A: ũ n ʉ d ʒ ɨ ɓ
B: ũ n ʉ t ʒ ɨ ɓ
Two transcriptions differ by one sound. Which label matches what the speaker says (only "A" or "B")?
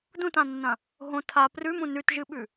B